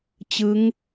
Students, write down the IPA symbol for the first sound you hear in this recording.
t͡ɕ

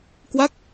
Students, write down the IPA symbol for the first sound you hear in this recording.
k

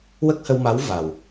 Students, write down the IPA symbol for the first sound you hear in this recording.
w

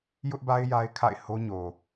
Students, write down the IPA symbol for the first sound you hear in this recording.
j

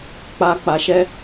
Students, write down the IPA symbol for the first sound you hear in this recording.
k͡p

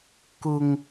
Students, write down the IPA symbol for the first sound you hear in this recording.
k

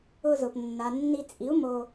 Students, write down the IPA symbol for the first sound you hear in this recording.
ʊ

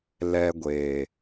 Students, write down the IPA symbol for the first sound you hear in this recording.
l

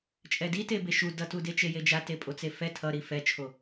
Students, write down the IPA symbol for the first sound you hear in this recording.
t͡ʃʼ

